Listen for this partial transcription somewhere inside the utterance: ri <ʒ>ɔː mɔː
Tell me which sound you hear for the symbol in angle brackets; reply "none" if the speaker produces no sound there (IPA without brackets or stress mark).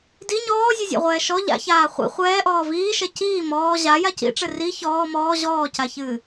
ç